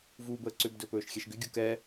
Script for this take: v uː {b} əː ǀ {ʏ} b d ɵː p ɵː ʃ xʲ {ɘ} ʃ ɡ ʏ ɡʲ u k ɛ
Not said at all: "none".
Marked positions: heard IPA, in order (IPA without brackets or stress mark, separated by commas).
b, ʏ, ɛ